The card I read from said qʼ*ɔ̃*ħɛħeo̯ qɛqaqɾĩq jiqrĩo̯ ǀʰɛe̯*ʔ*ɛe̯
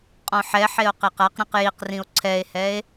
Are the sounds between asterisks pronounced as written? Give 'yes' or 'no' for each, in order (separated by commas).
yes, no